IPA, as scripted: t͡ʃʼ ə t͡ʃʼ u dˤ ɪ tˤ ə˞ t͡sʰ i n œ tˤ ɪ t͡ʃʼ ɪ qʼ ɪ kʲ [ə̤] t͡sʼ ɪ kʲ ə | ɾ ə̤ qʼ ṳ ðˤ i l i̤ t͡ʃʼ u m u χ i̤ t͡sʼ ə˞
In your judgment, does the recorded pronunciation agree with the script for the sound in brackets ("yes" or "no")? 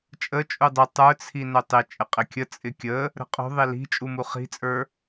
no